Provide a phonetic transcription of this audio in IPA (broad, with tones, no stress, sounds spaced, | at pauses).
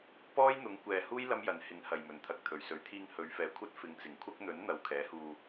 p ɔː˥ j n̪ ʊ˨˥ ŋ kʷ ɛː˨ h uː˥ j l ɐ˥ m j ɐ˨ n h ɪ˨˥ ŋ h ɐ˨ j m ɵ˨˩ n t̪ʰ ɐ˧ k̚ t̪ʰ ɵ˨˩ ɥ s ɵ˨˥ ɥ t̪ʰ iː˧ ŋ h ɵ˨˧ ɥ f ɛː˨ kʷʰ ɐ˥ t̚ f ɪ˨˥ ŋ t͡s ɪ˨˩ ŋ kʷʰ ɐ˥ k̚ n̪ ɵ˨˥ n n̪ ɐ˨˧ w kʰ ɛː˨˥ h uː˧